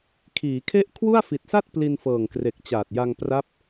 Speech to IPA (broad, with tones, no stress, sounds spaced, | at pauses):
kʰ iː˩˦ kʰ e˥˩ ʔ kʰ w u˥˩ a̯ f i˨˩ t̚ s a˥˩ t̚ p l i˧ n f ɤː˨˩ ŋ k r e˨˩ k̚ t͡ɕ aː˨˩ t̚ j a˧ ŋ p r a˦˥ p̚